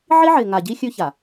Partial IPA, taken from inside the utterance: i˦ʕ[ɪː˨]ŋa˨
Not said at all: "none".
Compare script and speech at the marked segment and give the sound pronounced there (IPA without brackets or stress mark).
ɪː˨